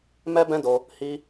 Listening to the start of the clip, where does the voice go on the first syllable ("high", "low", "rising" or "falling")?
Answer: high